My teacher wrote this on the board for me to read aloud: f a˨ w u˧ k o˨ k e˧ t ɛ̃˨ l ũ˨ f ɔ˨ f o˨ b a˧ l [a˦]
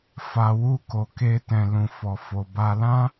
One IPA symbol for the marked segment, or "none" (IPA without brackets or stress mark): ã˦